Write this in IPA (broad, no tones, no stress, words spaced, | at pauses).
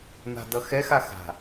n̪a̤dʌxɛx axa̤